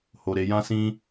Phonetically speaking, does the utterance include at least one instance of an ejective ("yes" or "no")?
no